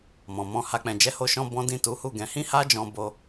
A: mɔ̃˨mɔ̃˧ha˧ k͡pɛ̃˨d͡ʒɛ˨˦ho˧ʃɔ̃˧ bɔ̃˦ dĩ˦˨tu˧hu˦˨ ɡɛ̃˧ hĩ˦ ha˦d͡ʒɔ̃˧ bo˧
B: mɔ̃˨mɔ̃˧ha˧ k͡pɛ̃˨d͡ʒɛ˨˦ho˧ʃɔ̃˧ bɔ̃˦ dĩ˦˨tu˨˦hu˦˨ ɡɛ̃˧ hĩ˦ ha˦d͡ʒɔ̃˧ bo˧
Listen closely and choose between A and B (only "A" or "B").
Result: B